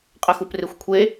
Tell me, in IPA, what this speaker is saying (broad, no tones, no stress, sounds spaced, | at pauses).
qʼ ə x u p r e xʷ kʷʰ e